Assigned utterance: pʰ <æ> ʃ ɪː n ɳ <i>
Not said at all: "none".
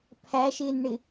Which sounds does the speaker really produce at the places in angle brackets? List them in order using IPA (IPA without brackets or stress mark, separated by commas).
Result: æ, ɪ